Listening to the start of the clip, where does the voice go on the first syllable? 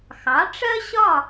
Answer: rising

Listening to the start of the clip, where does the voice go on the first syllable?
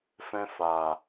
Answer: high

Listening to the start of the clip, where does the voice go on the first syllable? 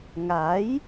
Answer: rising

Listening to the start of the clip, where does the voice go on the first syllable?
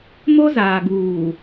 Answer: high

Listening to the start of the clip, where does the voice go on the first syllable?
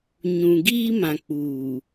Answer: low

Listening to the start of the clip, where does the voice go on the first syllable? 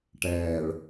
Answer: low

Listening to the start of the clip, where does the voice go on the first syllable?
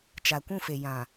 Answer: low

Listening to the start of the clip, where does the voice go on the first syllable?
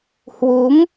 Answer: rising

